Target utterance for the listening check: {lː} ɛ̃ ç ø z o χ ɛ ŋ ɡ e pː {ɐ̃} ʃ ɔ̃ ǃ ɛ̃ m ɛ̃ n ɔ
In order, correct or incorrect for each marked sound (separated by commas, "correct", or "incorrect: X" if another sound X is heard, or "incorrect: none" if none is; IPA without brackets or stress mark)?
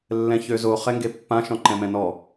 correct, incorrect: ã